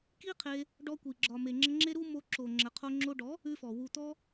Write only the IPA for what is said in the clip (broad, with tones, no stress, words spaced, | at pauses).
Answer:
ki˦qʰe˧ | ɖɔ˧kʷi˨ ɡ͡ǁɒ˨me˨ŋ͡ǁə˧ ŋ͡ǁe˦ɾu˦ mo˧ǁo˨ ŋ͡ǁə˨qʰo˧ ŋ͡ǁo˧ɖɔ˨˦ | ʉ˧fɔ˨ wu˨t̪ɔ˧